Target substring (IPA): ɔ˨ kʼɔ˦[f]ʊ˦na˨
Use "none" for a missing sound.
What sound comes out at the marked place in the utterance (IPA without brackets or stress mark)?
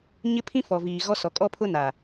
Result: pʰ